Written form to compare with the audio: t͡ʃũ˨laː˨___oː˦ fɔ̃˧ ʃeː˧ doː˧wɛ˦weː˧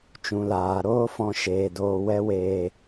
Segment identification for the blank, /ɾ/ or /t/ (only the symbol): ɾ